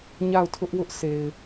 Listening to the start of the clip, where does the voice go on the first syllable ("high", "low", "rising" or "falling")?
falling